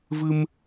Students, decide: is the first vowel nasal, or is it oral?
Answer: oral